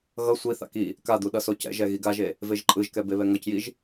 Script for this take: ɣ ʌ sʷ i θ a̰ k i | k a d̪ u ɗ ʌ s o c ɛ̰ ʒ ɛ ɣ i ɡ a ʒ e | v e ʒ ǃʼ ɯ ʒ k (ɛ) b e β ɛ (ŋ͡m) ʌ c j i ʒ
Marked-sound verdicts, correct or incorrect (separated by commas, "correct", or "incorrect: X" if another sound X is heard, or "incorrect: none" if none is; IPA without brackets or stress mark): correct, incorrect: ŋ